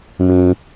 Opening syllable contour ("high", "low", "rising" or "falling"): high